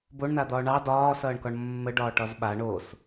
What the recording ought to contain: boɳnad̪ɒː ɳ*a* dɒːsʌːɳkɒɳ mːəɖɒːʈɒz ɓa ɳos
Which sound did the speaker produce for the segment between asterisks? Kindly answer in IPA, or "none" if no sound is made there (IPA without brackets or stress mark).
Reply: ɑ